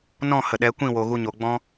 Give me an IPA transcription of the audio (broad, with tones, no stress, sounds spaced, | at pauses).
n ɔ̃˦˨ h ə˨ ɗ ɛ˨˦ kʷ ĩ˦˨ w o˨ ɣ u˧ ɲ o˨ ɡ͡b ɔ̃˦